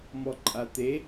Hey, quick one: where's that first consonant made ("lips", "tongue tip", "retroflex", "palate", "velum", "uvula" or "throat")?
lips